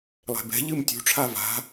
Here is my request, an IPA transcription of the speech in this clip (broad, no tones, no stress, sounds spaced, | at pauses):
lˠ ɛ̤ b ɛ̤ ʎ ɨ m tʲ ṳ ʈ͡ʂʰ a v a̤